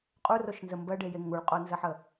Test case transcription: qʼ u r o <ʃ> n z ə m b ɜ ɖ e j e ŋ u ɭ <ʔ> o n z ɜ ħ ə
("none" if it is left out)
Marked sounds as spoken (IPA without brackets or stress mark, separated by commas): ʃ, qʼ